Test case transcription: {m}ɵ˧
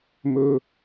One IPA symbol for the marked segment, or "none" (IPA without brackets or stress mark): m